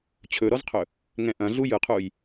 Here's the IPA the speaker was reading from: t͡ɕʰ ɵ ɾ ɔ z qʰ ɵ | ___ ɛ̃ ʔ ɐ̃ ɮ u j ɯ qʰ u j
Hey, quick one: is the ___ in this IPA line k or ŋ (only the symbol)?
ŋ